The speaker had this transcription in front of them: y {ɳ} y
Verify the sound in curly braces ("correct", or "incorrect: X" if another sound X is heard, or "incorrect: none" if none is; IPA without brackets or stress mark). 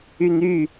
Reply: incorrect: n